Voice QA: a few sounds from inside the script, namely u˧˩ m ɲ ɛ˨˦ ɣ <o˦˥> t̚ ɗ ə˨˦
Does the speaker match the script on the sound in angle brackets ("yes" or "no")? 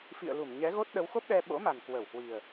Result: yes